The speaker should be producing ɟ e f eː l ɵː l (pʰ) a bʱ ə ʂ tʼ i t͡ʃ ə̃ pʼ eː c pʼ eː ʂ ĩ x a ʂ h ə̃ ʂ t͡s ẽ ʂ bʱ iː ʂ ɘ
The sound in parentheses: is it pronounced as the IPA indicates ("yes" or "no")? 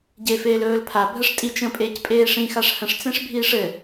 yes